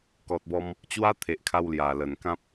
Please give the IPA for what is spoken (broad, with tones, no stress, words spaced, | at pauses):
kɔ˨t̚bɔ˧m | t͡ɕwa˦t̪ʰe˨ʔkʰa˧w lja˨˩lə˨˩nkã˦p̚